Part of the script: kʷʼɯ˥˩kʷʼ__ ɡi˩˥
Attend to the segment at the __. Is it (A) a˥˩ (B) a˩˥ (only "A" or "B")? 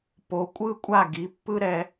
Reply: A